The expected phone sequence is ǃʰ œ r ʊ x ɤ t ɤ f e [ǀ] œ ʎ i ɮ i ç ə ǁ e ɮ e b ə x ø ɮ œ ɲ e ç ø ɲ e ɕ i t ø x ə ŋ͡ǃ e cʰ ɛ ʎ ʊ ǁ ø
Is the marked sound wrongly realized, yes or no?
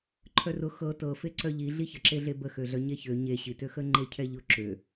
no